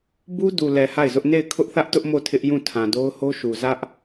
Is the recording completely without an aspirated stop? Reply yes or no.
no